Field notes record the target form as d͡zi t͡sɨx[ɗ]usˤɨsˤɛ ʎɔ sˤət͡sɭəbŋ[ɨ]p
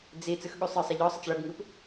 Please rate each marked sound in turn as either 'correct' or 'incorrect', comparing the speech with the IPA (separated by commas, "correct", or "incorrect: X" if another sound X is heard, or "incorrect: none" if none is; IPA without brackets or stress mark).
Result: incorrect: ɠ, correct